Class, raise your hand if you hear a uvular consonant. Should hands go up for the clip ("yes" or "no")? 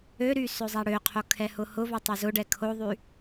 yes